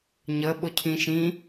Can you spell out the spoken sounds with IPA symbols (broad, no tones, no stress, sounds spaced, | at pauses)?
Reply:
ɲ ə ɓ ʊ cʰ ĩ ʃ ĩ